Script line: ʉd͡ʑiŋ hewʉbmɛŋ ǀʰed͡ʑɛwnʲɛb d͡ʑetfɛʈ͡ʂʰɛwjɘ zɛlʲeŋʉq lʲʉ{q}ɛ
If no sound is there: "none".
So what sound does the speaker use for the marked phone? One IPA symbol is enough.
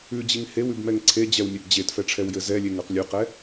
q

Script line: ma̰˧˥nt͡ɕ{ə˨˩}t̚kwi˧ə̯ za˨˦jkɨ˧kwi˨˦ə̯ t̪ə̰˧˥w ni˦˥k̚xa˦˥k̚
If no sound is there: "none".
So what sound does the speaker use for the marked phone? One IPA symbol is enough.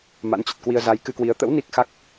ə˨˩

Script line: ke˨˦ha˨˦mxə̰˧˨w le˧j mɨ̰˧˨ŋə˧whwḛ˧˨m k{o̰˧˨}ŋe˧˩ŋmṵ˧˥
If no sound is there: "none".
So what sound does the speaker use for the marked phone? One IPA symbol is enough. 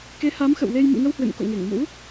o̰˧˨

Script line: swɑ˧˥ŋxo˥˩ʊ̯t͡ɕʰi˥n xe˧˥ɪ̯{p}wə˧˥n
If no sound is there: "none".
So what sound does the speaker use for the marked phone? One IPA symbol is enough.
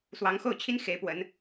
p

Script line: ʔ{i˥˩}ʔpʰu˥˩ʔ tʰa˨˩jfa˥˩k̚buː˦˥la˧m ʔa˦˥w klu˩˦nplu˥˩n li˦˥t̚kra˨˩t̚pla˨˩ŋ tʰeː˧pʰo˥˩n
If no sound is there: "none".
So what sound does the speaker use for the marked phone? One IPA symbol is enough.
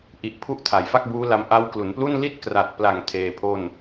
i˨˩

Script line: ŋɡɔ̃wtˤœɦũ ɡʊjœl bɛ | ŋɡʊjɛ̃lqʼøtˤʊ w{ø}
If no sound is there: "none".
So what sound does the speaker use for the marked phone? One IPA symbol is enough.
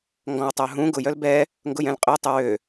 ø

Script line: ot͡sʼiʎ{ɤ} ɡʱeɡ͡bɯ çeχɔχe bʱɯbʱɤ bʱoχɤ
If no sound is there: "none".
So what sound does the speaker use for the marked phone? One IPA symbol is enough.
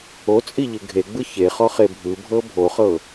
ɯ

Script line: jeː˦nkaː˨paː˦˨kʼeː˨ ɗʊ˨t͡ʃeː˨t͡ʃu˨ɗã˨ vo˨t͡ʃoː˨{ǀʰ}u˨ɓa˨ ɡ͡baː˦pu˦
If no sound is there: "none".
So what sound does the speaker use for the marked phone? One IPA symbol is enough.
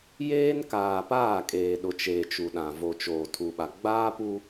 tʰ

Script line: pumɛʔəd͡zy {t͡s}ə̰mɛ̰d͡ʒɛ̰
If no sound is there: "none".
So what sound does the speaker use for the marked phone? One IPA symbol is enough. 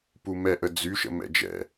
ʃ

